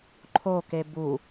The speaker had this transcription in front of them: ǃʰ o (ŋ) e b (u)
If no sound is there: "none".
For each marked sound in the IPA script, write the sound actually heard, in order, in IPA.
k, u

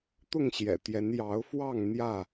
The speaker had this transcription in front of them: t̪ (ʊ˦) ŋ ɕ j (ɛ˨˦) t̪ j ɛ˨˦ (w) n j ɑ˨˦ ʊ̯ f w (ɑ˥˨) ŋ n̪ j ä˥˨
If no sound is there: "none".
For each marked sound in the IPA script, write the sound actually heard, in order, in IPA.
ʊ˥˨, ɛ̰˨˩, none, ɑ˥˨

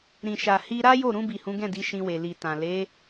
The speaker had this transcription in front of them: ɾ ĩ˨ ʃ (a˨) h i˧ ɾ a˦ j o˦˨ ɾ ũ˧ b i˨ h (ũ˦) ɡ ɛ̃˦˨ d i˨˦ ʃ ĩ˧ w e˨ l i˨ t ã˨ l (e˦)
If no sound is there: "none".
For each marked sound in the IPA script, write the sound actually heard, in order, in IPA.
a˨, ũ˨˦, e˨˦

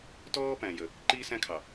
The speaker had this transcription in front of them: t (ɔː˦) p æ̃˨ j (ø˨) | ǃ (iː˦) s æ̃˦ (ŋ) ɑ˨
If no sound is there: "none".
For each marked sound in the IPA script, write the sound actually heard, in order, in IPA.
ɔː˦, ə˨, iː˦, kʰ

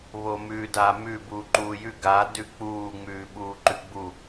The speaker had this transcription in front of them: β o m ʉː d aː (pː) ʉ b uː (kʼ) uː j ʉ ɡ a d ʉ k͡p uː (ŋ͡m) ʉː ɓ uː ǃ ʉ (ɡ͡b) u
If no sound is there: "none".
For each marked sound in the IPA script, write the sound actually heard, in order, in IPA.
m, ǃ, ŋ͡m, ɡ͡b

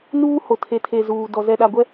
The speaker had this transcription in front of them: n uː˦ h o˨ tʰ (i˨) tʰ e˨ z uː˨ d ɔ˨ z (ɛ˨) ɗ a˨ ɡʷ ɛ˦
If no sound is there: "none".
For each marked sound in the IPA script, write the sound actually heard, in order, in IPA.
e˨, ɛ˨

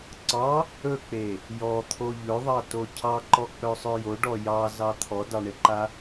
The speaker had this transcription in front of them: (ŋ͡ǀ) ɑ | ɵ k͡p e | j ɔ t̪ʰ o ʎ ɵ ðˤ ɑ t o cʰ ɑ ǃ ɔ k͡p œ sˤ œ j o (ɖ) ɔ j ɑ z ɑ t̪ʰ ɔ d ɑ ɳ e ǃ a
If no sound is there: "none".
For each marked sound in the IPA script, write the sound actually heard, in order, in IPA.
ǀ, ɖ

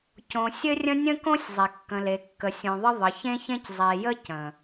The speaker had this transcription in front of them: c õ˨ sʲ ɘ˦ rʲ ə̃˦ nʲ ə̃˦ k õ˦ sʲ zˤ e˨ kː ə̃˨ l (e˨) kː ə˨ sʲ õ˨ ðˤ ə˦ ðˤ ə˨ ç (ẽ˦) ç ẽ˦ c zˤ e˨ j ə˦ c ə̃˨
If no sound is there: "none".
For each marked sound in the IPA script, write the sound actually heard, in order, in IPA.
e˨, ẽ˦

